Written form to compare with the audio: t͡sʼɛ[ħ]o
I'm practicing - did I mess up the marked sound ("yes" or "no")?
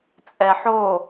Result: no